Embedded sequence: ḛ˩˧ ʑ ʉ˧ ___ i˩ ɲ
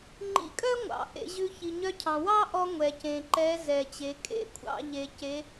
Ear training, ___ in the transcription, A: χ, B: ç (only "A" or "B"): B